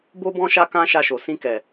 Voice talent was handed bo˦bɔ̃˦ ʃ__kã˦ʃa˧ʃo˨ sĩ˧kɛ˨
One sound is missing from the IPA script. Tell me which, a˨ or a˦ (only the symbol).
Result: a˦